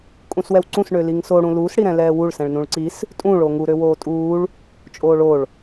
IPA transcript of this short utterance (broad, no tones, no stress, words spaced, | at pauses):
kʼũswɛwǀũs ɳøliŋso ɽũluːs ɽiɾɛ̃lɛːwuɭ sɛ̃ɭnũɭǀis | tʼũ ɭoŋu ɾøwoːtʼuːɭ | t͡ʃʼoːɭoɭ